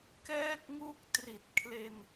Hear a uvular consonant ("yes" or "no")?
no